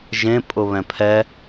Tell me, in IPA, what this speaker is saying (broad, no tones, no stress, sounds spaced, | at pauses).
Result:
ʒ ẽ pʼ ʊ β ɛ̃ pʰ ɛ